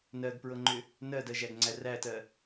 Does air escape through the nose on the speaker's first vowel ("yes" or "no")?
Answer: no